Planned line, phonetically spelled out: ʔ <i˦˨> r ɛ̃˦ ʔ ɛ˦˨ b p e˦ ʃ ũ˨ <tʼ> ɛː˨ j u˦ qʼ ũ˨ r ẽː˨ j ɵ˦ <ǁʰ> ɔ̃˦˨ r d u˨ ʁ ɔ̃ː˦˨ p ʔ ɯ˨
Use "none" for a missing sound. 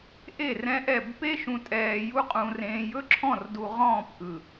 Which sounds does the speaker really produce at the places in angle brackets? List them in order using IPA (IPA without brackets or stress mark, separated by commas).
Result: e˦˨, tʼ, ǁʰ